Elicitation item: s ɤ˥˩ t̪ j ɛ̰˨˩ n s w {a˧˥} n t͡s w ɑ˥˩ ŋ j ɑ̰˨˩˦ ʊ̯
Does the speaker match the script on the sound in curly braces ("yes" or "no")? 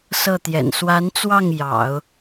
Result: yes